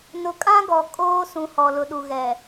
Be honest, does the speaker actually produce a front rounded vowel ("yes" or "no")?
no